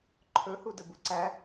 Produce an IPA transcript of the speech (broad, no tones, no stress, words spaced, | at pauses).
ǃʰɵ hudəbuǀæ